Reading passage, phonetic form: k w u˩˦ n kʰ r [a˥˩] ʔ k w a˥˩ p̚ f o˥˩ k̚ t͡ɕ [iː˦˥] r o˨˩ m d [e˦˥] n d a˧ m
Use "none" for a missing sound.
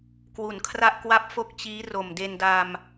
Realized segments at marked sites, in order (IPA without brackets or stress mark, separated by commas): a˥˩, iː˦˥, e˧